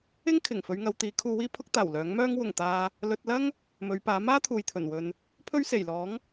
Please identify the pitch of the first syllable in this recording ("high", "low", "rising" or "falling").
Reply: high